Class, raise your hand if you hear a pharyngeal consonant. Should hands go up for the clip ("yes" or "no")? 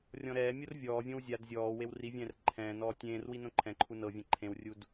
no